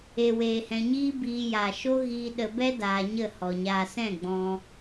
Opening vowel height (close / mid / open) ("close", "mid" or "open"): mid